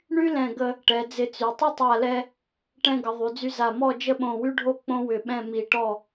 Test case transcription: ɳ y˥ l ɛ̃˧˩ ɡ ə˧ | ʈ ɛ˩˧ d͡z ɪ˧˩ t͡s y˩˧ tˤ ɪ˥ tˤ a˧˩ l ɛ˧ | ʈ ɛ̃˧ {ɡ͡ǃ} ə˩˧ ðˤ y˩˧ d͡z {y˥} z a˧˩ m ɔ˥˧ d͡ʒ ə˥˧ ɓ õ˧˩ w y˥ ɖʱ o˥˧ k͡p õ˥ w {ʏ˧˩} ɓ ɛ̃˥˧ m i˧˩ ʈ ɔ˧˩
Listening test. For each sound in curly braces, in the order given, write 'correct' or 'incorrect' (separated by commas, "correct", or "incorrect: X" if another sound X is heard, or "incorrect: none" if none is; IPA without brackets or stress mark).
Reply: incorrect: ɡ, incorrect: y˧, correct